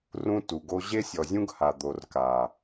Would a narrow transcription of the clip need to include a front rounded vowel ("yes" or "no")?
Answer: no